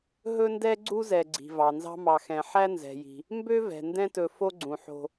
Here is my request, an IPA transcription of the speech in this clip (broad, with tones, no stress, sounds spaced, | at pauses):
ɦ ɵ˥ n d ɛ˥ ɡ͡ǀ u˥ z ɛ˨ ɡ͡ǀ i̤˩ v ɑ˩ n z ɑ̤˦ m ɑ˨ x ɛ̃˨ ħ æ˥ n z ɛ̤˩ j i̤˩ | m b ø˥ v ɛ̤˩ n d ɛ̃˦ t ɵ˨ f o˦ ɡ͡ǀ ũ˩ ħ o̤˨